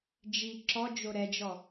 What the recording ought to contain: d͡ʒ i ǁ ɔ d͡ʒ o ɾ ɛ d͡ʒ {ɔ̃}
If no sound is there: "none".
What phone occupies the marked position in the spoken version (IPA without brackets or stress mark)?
ɔ